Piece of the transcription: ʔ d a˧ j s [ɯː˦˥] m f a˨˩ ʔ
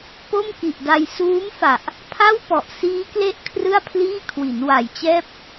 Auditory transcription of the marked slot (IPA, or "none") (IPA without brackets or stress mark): uː˦˥